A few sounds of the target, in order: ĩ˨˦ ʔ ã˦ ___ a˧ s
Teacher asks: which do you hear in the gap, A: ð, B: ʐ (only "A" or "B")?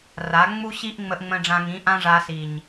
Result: B